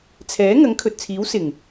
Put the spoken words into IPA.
t͡sʰɛː˨˥ ŋɐ˨˥ŋkʰɵ˨t̚t͡sʰiː˨˥w sɪ˨˩ŋ

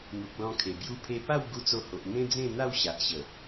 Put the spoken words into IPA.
n̪u˨k̚ lɔ̃˧kʰe˨˩ bju˧pʰe˧ pa˥˧w ɡu˧t͡so˧ho˨ʔ n̪ẽ˦d͡zẽ˥˧ n̪a˥˧wɕa˨ʔɕə˨˩

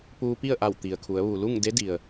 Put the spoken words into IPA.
puː˧pi˥˨ə̯ʔa˧˩w t̪i˩ə̯kʰu˩˧ə̯ ʋu˩lu˥˨ŋ de˧˥di˩ə̯

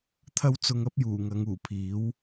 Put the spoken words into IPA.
t̪ʰɐ˥w t͡sʊ˧ŋɐ˥p̚ juː˨˩ŋɐ˨˧ŋuː˨˩pʰiː˨˥w

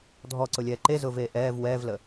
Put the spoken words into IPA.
dʱɔǀʊlʲɛː ǃezʊːveː ʔɛːv wɛːvlə

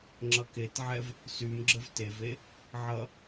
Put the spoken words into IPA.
ŋ͡ǁʌketʕɛv | symɡ͡ǁəv teve | ʕʌ

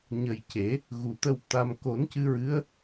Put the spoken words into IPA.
ɲə˨˩j ce˨˩˦ | ɣu˨˩t̪ə˧w t̪a˧m ko˨˩˦n cɨ˧ɹɨ˧˥ə̯

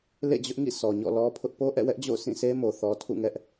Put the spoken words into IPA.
lḛ˦˨ d͡ʑʊ˦ʔŋḭ˦˨ sɔ˨ɲɔ̰˦˨ lɔ˦ pʰʊ˦ʔ po˦ʔɛ̰˦˨wɛ˦ʔ d͡ʑo̰˦˨ʊ̯sĩ˦˨sʰe˦mo˨ θɔ˦ tʰṵ˦˨ŋɛ˦ʔ

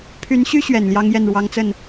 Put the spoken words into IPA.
pʰy˧˥nɕy˥ɕɥɛ˨˩n ljɑ˥ŋjɛ˥˩n ɻwɑ˥ŋt͡sə˥˩n

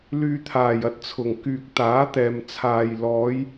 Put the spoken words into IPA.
lyː˨t̪ʰaː˨˩jɐ˧t̚ t͡sʰʊ˨˩ŋkyː˨k̚ t̪aː˨˥t̪ɛː˨m t͡sʰaː˧j lɔː˨˧j

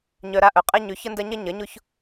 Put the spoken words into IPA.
ɲœ˧ɾa˦ʔœ˨ qʼɛ˧ɲʏ˨˦ çə˦ndɐ˦ɲɐ˦ ɲɐ˨˦ɲʊ˦ç

